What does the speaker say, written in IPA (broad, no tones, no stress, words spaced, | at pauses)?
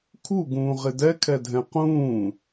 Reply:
kʰuɡũːʁɪ dɛkʰɛdʱɛ̃ qũː